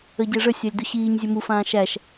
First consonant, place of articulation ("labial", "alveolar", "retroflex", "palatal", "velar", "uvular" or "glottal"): palatal